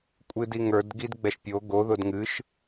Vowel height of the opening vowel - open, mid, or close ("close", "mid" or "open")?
close